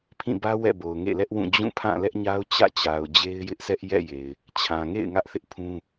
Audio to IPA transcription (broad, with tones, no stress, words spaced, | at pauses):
pʰĩ˦˨bä˦ wɛ̰˦˨bo˨ʊ̯ ŋḛ˦˨lɛ˦ʔwũ˦˨ d͡ʑũ˦˨pʰã˦˨ lɛ˦ʔɲa˦ʊ̯ t͡ɕä̰˦˨t͡ɕa˨ʊ̯ d͡ʑe˦ɪ̯jɪ˦ʔsɛ˦ʔ jɛ̰˦˨je˨ɪ̯ | t͡ɕʰã˨ŋḛ˦˨ɪ̯ ŋä˦ʔθɪ˦ʔpʰũ˦